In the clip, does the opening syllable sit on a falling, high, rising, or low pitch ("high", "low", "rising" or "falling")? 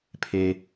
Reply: low